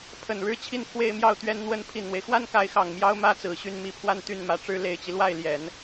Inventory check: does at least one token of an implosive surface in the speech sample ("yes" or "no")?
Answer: no